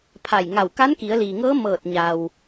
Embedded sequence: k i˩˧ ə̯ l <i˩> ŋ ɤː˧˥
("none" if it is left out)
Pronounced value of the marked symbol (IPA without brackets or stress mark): iː˩